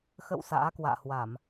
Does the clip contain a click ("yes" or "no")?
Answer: no